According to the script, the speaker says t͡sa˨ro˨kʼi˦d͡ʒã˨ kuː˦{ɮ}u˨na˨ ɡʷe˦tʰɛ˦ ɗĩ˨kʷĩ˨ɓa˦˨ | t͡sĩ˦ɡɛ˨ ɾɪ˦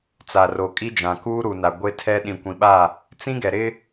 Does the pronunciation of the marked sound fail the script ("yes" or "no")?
yes